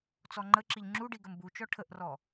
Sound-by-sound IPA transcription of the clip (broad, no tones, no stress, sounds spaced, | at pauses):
t͡s ɔ ŋ͡ǃ ə ǁ i ʎ ŋ͡ǁ u ɖ i ɡ ə m b u t͡ʃ ɔ ʈʰ ə ʔ r ɔ